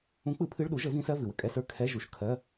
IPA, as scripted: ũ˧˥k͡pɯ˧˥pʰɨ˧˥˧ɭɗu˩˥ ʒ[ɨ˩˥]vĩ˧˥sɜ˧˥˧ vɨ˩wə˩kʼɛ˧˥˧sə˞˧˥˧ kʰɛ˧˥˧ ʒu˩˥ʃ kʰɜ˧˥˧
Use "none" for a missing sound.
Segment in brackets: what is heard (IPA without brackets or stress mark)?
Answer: ə˩˥